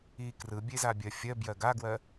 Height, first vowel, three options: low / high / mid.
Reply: high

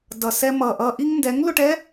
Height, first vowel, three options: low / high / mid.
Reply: mid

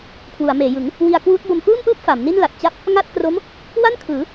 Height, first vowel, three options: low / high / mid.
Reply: high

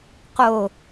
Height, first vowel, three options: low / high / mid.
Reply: mid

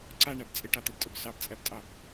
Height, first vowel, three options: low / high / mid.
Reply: low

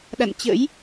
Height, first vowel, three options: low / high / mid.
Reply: low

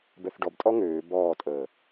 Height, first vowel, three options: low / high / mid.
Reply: mid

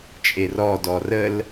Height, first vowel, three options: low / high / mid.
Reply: mid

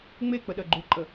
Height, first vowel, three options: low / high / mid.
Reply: mid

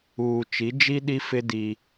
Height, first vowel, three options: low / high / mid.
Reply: high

